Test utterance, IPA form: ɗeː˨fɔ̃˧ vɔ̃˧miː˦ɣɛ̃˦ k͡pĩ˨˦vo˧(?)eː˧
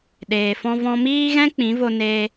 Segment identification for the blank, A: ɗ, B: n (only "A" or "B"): B